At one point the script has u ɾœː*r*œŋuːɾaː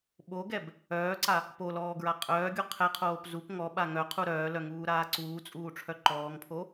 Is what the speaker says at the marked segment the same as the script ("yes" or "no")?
no